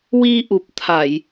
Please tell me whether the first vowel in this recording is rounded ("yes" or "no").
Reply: no